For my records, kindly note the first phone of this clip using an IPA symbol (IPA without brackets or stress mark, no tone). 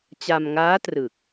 t͡ɕ